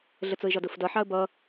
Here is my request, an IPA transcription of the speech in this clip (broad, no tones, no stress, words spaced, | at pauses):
ɮət͡sʊɪ̯ʒɒdʊf dʌ ħɑə̯bʌ